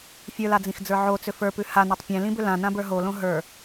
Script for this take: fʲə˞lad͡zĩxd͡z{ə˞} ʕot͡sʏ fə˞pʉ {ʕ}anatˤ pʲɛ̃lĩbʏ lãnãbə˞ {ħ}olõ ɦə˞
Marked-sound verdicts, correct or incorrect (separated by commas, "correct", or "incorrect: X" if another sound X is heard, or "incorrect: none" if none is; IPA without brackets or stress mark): correct, incorrect: h, incorrect: ɦ